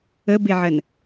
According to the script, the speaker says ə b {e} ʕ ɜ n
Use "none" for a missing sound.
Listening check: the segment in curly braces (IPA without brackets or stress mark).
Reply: e